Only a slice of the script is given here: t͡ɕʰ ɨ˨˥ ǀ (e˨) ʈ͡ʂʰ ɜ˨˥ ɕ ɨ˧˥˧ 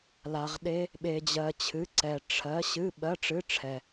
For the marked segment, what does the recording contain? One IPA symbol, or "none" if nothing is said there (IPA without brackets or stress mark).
ɛ˨